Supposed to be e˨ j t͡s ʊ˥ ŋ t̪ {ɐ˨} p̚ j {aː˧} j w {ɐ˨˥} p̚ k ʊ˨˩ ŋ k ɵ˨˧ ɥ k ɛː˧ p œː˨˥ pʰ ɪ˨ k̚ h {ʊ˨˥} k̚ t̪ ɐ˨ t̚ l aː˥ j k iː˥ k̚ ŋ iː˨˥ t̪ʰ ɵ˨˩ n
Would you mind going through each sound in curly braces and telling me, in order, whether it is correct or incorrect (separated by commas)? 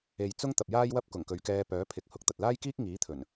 correct, incorrect, incorrect, correct